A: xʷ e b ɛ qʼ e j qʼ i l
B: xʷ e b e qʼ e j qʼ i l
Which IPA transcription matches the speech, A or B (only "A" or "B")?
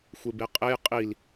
B